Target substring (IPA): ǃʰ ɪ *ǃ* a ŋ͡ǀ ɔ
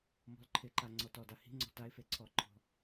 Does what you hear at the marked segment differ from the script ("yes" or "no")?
no